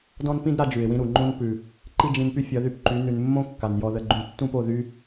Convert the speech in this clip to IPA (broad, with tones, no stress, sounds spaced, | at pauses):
d ɔ̃˦ n p ĩ˦ d ɾ a˧ d͡ʒ ʉ˨ ɪ̯ w ĩ˦ ɾ u˨ ŋ͡ǃ õ˦ n p ʉ˨ | ǃ i˦ d͡ʒ ĩ˧ n p y˦ fʲ ʌ˨˦ ð y˧ p ǃ y˨˦ n ʉ˨ n mː õ˦ kː a˨ n j ɔ˧ ð ə˧ ɡ͡ǃ ũ˧ tː ũ˦ p o˦˨ ð y˦